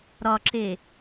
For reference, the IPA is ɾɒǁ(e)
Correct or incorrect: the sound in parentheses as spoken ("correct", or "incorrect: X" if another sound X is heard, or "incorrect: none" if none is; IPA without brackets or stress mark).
correct